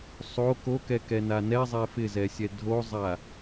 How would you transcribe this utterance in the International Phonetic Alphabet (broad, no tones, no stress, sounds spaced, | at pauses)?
sˤ o k o k ɛ k ɛ n a n ɛ zˤ ɛ f ɪ z ɛ sʲ ɛ dʱ o zˤ a